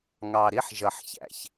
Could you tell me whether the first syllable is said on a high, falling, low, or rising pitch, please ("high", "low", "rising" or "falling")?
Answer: low